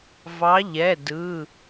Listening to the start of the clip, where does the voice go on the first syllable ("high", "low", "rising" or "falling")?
rising